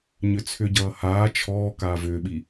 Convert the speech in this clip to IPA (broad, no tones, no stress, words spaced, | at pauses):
ɲʏt͡sʰʏɟʌː haː t͡ʃʰɔː kaːvʏːɓi